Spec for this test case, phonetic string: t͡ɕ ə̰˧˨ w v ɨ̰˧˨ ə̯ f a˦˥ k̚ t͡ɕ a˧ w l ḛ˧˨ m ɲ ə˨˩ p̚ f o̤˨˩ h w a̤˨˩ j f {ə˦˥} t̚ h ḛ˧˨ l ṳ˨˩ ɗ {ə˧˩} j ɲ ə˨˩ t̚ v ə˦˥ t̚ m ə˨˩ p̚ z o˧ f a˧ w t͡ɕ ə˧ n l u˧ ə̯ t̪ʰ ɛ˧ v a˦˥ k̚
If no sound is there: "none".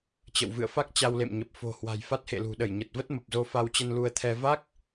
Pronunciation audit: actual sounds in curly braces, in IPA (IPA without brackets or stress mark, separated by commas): a˦˥, ə˧˩